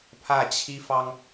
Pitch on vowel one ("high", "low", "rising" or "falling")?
falling